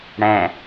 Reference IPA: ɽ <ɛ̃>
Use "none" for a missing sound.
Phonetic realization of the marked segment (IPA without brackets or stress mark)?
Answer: ɛ̃